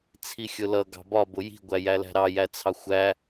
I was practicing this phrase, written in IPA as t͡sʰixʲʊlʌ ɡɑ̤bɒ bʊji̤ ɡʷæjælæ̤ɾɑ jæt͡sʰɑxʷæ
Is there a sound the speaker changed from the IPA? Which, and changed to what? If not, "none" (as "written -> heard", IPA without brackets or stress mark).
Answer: none